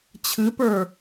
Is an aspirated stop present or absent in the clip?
present